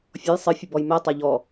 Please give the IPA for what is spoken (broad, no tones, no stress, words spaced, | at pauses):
fʲɔj sˤɨ fʲɘbɔjmɛ tˤaʎɔ